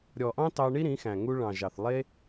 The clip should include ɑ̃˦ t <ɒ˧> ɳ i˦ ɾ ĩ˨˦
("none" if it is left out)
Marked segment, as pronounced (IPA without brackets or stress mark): ɑ˧